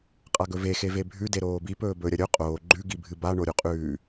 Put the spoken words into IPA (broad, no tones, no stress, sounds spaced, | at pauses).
qʼ a ɡ ɵ v e x e v e bʱ ʉ d e ɾ oː b i p ɵː b ɵ ɾʲ ɐ ɾʲ ɵ qʼ oː ɡ͡ǃ ʉ ɡ i bʱ ɨ b a ɳ o ɾʲ u qʼ ʉː